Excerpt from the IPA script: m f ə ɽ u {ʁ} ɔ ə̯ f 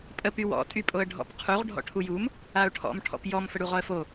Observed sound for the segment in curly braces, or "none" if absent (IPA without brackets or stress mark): ʁ